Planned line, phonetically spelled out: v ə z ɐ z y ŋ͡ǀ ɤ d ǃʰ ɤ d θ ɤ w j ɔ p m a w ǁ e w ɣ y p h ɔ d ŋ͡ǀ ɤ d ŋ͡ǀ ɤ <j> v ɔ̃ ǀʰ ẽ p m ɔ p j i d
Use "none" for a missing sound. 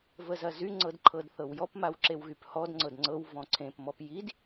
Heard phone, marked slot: w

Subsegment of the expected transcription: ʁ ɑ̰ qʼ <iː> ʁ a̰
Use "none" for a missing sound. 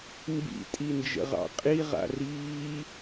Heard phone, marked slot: i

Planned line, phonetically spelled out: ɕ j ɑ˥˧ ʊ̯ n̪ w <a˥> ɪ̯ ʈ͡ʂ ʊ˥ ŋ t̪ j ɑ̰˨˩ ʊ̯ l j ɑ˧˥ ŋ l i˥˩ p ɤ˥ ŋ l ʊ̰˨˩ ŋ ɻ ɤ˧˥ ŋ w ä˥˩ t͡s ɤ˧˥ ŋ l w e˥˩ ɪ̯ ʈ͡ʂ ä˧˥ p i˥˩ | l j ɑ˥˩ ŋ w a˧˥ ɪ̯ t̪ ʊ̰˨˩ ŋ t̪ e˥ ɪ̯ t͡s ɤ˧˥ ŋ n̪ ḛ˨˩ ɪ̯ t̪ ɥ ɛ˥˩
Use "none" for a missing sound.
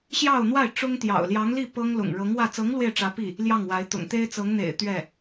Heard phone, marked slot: a˥˩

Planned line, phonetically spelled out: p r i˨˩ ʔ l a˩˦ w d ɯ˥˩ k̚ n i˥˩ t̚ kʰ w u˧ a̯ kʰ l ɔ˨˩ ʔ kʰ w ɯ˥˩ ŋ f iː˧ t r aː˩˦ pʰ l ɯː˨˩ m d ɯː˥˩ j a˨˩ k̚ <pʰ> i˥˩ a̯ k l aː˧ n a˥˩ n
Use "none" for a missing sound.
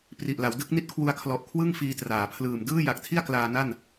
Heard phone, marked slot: tʰ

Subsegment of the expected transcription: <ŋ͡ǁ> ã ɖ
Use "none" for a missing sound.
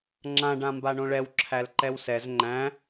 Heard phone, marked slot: ŋ͡ǁ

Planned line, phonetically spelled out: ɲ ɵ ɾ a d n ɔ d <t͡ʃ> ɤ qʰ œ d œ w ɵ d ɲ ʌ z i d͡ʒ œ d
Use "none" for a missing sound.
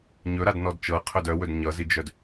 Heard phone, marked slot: t͡ʃ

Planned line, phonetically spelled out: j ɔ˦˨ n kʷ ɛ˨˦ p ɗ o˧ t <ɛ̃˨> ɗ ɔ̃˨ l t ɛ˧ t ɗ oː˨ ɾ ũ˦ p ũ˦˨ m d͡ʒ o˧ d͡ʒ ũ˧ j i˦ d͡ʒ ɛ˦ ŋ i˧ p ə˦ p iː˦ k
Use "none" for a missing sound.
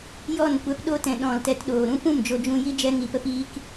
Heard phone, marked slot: ɛ̃˨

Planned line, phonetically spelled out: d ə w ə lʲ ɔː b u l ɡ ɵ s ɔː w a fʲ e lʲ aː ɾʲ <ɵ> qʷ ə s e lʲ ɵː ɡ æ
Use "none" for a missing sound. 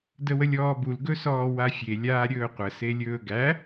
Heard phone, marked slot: ɵː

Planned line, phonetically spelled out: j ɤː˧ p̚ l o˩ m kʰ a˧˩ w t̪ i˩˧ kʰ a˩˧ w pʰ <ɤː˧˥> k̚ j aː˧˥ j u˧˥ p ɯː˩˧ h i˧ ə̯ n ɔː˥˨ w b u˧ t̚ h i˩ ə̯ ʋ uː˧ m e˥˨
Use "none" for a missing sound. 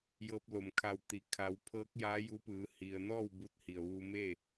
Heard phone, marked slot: ɤː˧˥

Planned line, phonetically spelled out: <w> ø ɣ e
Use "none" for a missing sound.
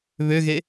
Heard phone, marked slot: β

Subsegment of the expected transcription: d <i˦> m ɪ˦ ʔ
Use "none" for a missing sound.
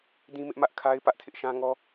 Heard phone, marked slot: ĩ˦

